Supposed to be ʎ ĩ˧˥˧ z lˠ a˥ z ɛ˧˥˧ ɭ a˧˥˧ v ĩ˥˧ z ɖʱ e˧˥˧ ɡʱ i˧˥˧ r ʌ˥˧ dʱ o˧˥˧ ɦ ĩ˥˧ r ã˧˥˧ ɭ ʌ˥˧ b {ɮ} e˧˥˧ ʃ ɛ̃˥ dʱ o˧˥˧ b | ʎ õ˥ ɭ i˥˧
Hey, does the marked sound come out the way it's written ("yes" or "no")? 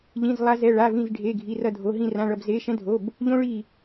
no